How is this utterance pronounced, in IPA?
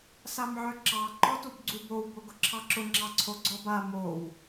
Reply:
s a m ʕ œ ǁ ɑ ǃ ɔ t u b ɡ͡ǀ u b o w b o ɡ ʊ ǁʰ ɑ ǁ ʊ ŋ͡ǁ ɑ ǀʰ o ɡ͡ǀ ɔ b a m o w

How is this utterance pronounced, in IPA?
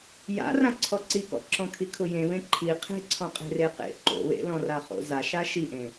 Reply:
j a̰ r ã ǀʰ ɔ ǀ i k ɔ̰ ǁ ɔ̃ kʰ i kʰ ʊ j ẽ β ẽ ǃʰ i qʰ e̤ ǀʰ ɔ̃ qʼ e̤ r e q ḛ ǃ o̰ β ḛ l ɔ̃ r a χ o̰ z a ʃ a ʃ i ʔ ẽ

